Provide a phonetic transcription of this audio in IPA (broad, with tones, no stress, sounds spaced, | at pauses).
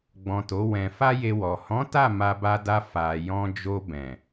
ɡ͡b ɔ̃˨ t o˨˦ w ɛ̃˧ f a˦ j e˧ w ɔ˨ h ɔ̃˨˦ t a˦˨ m a˧ b a˧ d a˧ f a˨ j ɔ̃˧ d͡ʒ o˧ b ɛ̃˨